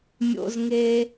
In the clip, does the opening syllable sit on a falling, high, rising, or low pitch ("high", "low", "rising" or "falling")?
low